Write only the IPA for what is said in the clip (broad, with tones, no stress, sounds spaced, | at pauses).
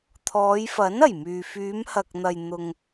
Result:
t̪ʰ ɔː˨˧ j f ɐ˨˥ n ɐ˨˩ j m yː˨ f yː˨˧ m h ɐ˨ k̚ n̪ ɐ˨ j n̪ ʊ˨ ŋ